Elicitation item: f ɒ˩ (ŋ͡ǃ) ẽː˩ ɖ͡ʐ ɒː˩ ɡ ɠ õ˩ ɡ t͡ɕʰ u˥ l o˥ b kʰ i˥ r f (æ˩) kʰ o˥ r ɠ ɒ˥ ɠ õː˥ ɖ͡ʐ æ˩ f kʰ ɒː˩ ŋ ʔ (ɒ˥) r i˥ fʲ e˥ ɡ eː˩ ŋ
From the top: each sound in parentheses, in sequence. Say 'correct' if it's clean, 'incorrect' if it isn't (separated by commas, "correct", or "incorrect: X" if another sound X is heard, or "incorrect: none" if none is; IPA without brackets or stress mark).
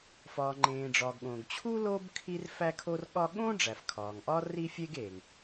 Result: correct, incorrect: æ˥, correct